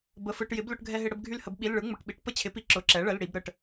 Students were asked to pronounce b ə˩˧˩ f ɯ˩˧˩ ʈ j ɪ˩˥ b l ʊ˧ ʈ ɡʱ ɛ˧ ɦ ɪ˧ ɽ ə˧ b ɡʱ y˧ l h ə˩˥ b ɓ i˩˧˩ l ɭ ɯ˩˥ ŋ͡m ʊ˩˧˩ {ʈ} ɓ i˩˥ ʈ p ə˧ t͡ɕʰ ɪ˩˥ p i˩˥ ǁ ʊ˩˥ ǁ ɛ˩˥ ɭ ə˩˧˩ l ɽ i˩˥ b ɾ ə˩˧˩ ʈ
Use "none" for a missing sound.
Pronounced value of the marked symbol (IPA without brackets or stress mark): ʈ